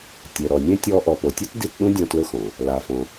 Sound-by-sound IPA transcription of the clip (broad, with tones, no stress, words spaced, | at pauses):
tʲe˨ɾɔ˨nʲẽ˥tʲɔ˦ ʔɔ˨po˨tʲe˥t di˦tɗũ˥ dʲɔ̃˦tlʊ˥xɔ̃˩ | la˨fɔ̃˨